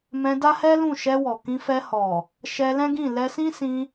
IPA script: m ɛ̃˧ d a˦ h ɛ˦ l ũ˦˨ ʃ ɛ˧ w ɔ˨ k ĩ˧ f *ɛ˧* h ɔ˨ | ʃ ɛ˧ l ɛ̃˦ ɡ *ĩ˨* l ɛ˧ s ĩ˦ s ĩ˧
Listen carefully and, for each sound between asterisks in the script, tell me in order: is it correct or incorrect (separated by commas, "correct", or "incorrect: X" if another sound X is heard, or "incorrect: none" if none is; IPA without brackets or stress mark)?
correct, incorrect: ĩ˦˨